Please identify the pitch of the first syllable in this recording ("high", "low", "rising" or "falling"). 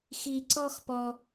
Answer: high